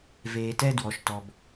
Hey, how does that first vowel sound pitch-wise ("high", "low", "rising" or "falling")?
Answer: low